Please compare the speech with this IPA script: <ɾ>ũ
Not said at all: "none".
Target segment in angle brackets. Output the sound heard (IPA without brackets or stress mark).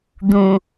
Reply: d̪